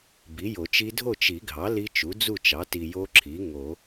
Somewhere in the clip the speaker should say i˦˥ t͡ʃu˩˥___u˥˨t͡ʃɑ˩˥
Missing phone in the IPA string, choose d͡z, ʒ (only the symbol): d͡z